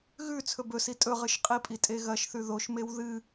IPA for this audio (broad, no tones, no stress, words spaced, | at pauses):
ɣʉ t͡sʰɵbɵsi tʼɵ ʁɨʃqʼipʼi tʼeɣɐʃθʉ ðoʃmew ðɨ